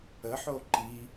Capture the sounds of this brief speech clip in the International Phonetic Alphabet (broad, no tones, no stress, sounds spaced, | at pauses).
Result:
ə ħ o ǃ i